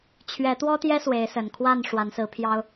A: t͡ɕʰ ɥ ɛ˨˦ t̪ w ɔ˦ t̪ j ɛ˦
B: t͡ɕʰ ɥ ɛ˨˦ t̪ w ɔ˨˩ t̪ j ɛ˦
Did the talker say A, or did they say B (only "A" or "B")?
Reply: A